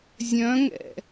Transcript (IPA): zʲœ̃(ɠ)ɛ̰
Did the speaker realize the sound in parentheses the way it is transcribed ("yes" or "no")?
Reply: no